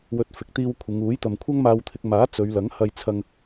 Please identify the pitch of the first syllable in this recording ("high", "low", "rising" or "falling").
rising